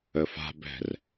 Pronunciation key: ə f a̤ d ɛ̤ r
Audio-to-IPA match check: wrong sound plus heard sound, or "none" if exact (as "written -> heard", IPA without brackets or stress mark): d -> b